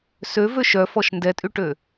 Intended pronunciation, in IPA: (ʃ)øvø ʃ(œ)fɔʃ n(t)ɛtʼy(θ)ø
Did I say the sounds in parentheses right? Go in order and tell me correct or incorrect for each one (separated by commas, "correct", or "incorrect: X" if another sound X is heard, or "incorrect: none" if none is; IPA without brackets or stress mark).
incorrect: s, correct, incorrect: d, incorrect: ʈ